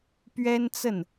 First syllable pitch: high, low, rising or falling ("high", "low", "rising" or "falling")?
high